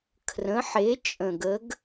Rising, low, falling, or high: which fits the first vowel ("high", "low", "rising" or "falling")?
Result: rising